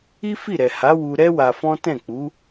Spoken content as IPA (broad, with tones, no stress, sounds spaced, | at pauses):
i˦ f i˦˨ ɾ ɛ˨ h a˨˦ w u˧ ɾ ɛ˦ w a˧ f ɔ̃˦ t ɛ̃˦˨ k͡p u˨˦